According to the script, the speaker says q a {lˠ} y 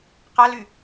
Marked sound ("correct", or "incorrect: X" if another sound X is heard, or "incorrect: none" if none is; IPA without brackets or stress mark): incorrect: l